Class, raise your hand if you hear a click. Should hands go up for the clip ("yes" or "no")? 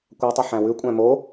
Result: no